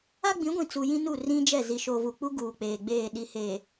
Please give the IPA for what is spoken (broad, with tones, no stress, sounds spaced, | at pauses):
a˦ ɡ͡b ĩ˨˦ ɡʷ ĩ˨ t͡s u˨ j ĩ˦ n u˦˨ r ĩ˦ d͡ʒ ɛ˦˨ z i˨ ʃ o˨ v u˨ k͡p u˦ ɡ uː˨ k͡p eː˨ ɡ͡b eː˦˨ ɗ i˨ h eː˨